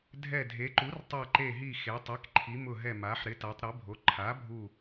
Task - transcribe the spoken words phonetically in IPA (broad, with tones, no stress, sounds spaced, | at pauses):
dʱ ɛ˧˩ dʱ e˩˧ ǃ u˩˥ r tˤ a˧˩ ǃ e˧˩ ɦ i˧˩ x e˩˧ tˤ ɛ˩˥ k ǃʰ i˩˧ m ʊ˧˩ ɦ ɛ˧˩ m a˩˧ ħ ɾ ɪ˩˥ t a˩˧ tˤ ɾ e˩˥ bʱ o˩˥ ǃʰ a˩˥ bʱ u˧˩